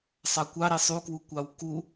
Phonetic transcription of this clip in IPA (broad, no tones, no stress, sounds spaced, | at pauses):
sˤ ɑ kʷ ɑ ɾ i sˤ u k w u kʷ ɑ w k u